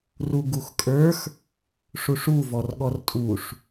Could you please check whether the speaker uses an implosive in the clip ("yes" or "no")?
yes